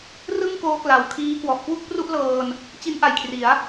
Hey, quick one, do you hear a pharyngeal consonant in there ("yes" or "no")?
no